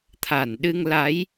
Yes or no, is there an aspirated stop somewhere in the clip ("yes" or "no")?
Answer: yes